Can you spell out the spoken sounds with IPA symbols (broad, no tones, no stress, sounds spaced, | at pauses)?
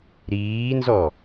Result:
ɾ iː n z ɔ